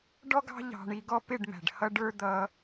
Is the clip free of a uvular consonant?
yes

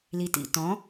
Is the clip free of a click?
yes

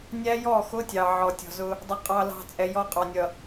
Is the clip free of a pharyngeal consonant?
no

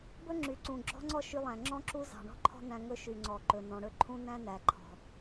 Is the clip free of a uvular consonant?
yes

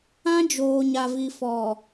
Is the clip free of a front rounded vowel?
yes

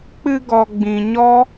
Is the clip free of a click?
yes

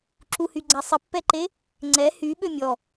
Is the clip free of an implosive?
no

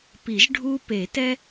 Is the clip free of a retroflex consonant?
no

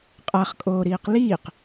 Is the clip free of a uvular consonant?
no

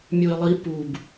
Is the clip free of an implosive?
yes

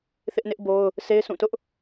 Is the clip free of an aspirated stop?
yes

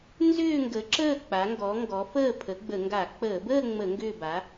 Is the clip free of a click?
no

